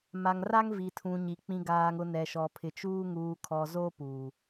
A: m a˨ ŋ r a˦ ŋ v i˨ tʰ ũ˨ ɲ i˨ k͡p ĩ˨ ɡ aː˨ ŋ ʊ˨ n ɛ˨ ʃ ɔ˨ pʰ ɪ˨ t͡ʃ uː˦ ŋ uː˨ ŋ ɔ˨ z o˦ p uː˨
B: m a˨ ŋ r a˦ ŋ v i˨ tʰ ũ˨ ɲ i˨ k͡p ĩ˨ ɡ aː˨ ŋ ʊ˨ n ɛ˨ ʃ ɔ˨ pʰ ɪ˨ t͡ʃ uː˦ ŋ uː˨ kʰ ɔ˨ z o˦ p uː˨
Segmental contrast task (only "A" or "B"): B